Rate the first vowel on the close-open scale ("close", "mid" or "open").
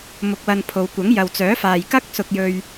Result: close